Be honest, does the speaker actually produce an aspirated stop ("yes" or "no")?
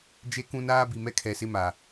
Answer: yes